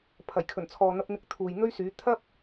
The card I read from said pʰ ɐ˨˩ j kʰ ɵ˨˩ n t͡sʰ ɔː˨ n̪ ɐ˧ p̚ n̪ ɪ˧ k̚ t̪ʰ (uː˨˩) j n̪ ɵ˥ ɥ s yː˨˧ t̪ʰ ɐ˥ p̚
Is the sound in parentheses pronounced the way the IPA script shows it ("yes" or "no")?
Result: no